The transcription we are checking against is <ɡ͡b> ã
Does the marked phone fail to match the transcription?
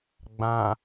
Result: no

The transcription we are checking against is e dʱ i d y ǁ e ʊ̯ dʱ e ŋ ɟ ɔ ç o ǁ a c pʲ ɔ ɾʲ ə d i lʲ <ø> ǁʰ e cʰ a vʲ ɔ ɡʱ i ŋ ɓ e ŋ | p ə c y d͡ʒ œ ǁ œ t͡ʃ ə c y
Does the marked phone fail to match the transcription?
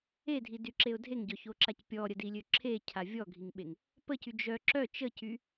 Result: no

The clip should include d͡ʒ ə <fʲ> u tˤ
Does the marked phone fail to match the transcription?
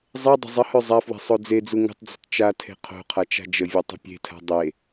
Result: yes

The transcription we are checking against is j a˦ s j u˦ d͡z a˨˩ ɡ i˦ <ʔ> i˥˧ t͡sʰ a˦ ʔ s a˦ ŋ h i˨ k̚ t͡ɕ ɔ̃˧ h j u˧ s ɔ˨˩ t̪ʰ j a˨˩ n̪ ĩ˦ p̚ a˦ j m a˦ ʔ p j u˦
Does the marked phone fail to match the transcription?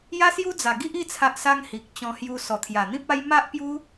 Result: no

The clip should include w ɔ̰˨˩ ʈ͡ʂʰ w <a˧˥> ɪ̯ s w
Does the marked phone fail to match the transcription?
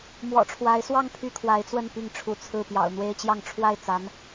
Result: no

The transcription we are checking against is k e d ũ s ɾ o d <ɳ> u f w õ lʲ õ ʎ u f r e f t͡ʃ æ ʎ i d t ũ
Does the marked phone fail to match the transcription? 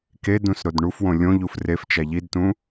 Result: no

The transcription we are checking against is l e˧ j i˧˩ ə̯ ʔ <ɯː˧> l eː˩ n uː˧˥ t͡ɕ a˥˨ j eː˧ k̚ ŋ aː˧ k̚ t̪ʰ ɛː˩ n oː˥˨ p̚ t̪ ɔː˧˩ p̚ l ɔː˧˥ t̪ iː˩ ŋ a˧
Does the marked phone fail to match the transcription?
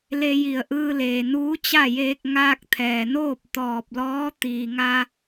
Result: no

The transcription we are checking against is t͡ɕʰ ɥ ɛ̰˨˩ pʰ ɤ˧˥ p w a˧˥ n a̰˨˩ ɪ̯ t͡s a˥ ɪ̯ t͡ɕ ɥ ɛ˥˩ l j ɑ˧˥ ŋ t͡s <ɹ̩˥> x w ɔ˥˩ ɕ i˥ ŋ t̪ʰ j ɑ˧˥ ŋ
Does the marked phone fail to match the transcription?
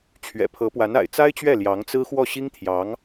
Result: no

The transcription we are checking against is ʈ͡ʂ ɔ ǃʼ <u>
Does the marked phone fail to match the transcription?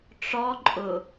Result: yes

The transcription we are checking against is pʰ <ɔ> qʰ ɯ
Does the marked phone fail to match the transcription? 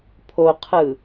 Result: yes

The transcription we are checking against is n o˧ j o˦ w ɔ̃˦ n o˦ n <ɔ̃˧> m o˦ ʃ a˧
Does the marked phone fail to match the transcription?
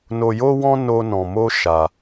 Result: no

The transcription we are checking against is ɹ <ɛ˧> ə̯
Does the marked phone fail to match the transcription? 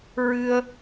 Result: yes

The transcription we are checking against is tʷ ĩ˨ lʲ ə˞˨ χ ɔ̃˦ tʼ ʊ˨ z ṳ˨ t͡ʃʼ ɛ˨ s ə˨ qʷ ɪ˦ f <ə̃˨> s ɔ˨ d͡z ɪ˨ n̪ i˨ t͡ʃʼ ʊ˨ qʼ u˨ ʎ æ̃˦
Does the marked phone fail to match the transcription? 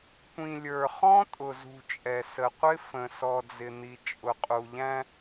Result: no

